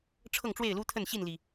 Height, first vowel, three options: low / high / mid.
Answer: mid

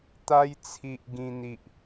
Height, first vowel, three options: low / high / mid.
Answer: low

